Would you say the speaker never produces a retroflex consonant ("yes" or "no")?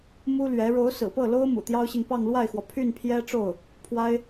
no